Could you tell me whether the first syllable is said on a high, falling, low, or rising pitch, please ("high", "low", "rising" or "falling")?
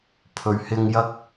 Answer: low